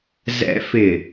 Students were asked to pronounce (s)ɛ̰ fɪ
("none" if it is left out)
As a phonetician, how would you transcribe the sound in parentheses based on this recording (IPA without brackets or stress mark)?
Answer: z